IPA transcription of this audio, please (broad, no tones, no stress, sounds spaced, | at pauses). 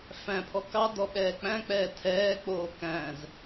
f æ̃ pʰ ɔ k ɑ d ɔ ɓ ɛː k͡p æ̃ k͡p ɛː tʰ ɛː k͡p oː k æ̃ z